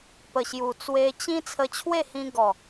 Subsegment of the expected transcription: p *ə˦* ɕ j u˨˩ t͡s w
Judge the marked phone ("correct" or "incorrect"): incorrect